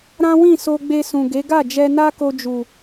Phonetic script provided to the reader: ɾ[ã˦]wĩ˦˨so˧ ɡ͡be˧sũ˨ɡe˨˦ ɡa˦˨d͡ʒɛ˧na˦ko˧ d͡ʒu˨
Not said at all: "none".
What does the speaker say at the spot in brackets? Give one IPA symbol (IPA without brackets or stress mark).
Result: ã˦